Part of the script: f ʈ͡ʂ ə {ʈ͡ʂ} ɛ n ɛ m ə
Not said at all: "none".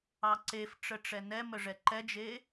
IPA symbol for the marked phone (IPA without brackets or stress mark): ʈ͡ʂ